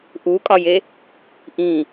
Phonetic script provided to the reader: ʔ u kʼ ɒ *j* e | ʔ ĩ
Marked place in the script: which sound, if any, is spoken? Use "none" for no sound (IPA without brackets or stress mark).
j